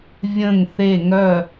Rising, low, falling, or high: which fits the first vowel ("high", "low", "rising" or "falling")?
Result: falling